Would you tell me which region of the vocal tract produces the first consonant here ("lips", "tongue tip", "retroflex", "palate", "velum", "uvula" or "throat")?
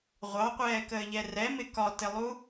uvula